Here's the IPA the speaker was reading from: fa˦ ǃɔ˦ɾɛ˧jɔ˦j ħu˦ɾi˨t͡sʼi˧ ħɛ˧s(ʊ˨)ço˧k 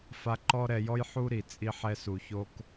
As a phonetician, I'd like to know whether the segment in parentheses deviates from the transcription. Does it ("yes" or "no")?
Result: yes